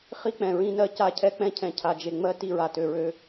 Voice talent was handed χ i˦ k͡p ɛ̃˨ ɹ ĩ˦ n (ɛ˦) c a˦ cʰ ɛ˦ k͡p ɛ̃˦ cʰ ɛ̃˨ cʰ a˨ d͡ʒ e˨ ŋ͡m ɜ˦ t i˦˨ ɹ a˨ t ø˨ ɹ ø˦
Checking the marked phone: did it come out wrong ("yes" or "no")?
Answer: yes